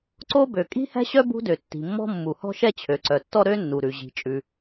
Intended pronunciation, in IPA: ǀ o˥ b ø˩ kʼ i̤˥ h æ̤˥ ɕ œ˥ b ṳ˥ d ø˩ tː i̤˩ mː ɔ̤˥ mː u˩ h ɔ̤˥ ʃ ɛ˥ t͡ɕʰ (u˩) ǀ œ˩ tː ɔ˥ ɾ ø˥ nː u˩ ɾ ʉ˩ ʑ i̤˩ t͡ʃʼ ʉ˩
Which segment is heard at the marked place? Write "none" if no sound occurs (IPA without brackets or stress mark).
ø˩